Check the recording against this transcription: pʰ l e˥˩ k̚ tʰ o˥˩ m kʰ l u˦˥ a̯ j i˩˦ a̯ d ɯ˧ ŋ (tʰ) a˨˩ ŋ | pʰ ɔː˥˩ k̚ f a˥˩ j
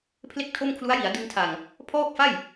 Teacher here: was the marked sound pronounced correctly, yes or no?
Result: yes